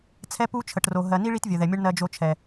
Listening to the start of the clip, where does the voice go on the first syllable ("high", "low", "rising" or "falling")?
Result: high